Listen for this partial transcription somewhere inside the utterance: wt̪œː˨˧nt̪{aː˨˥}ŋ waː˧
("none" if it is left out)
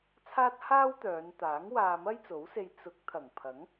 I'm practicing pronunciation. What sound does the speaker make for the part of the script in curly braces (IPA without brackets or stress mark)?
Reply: aː˨˥